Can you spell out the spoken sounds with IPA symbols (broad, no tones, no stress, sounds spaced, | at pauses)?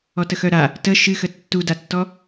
ɔ t ə x œ ɾ a | t ə ʃ ɨ x ə tː u d a tː ɔ